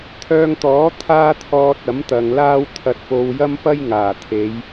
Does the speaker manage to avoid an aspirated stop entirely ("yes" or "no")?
no